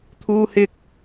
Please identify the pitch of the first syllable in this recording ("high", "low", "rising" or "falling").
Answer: high